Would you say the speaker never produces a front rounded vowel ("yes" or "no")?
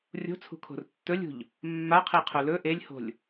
yes